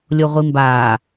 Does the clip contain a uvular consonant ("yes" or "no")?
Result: yes